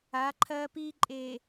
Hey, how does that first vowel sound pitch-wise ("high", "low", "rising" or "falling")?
rising